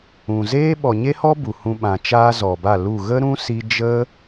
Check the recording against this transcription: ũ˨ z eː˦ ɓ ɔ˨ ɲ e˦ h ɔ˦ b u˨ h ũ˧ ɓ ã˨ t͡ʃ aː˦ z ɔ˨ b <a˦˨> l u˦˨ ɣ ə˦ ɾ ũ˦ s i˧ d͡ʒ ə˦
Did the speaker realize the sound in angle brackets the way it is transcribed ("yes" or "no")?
yes